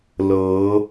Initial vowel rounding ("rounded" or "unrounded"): unrounded